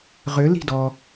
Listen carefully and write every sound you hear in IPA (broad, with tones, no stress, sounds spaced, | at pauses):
ʁ ʏ˨˥ l i̤˥˨ d ɔ˨